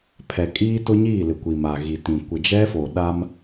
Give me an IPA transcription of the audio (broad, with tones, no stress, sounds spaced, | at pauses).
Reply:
pʰ ɛ˨ kʼ iː˦ t ʊ˦ ɲ iː˦˨ l ɪ˨ kʷ i˨ m a˨ ɣ i˨ t ĩ˨ kʷ ɪ˨ d͡ʒ ɛ˦ f o˨ ɗ a˦ m